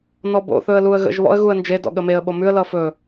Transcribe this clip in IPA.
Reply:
n ɔ b o̰ θ ɵ ə̯ l u ə̯ ɣ ə̰ ʒ β ɔ̰ ə̯ ɣ u ə̯ n d͡ʒ e d ɔ̰ ɠ ə m e ə̯ ɓ o m ʉ ə̯ l ʌ f ɵ

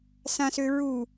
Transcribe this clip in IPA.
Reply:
s ã s ø ɹ u

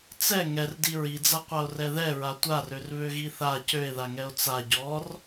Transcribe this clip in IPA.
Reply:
t͡s ɛ ŋ ɛ r d i ɹ i d͡z a qʷ a o̯ r ɛ ð ɛ ɹ a tʷ a r ø r β ø ɣ i θ a c ø e̯ ð a ŋ ɛ o̯ t͡s a ɟ ɔ r

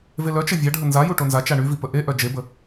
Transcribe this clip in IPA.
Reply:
v e l œ t͡ʃ ə vʲ a ɖʱ ə n z a j u ʈ o n z a t͡ʃ a ɳ y v i p ə ʔ e ʔ œ d͡ʒ e b ə

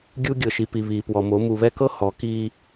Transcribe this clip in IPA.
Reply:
ɡʲ u˦ ɡʲ ɤ˨ ʃ i˨ p i˨ β iː˨ p w ɔ˨ m o˨˦ m u˨ β ɛ˦ k ɤ˦ h ɔ˨˦ k iː˦

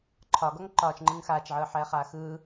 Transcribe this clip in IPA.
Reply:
ǃʰ ɒ ɡ ɔ ŋ ǃ ɒː t͡ʃ ŋ͡ǃ ɯ ŋ x aː t͡ʃ ʕ ɯː ħ ɛː χ aː x ɯː

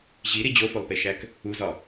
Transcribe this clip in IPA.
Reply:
ʑ i ɾ i d͡ʑ o f o lˠ p e ʃ æ k | u z ɒ

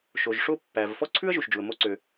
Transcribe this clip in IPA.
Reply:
ʃ o˩ ʒ ʂ o˦ pː æ˩ v f ɔ˥ ǀʰ ʉ˥ ə̯ ʒ u˩ ʃ d͡ʒ u˩ ə̯ m o˦ ǀ ø˨

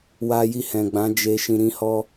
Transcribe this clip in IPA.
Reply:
w a˧ j i˧ h ɛ̃˨ ɡ͡b ã˨˦ d͡ʒ e˧ ʃ ĩ˧ ɾ ĩ˦ h ɔ˦

